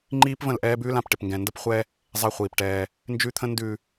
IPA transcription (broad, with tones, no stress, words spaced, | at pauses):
ŋ͡ǃiː˦pvə̃˦˨l ʔɛː˦bʉː˦lã˨p ʈɪ˨pŋɡɛ̃˨ndə˦p χʷɛ˦ | zˤɛ˦χʷiː˨pʈɛː˦ | nd͡ʒʉ˦t̪ʰə̃˦ ndʉ˨